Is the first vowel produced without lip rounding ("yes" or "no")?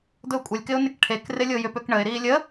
no